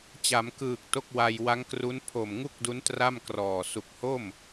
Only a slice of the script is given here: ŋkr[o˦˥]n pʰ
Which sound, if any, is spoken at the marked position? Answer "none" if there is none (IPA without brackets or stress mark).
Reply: u˦˥